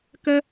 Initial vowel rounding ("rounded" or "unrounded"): unrounded